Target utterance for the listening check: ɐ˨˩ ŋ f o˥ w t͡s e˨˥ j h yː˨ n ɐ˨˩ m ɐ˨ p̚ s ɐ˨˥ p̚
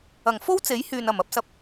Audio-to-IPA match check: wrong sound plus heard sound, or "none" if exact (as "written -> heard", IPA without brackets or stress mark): none